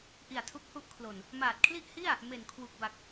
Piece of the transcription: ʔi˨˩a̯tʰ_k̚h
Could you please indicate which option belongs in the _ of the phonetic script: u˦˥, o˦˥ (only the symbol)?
u˦˥